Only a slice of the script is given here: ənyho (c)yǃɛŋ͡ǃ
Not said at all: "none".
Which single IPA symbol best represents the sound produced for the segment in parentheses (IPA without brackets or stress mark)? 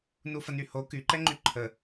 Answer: k